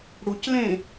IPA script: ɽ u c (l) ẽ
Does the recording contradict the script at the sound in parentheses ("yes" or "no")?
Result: no